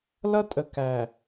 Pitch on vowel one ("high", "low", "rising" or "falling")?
high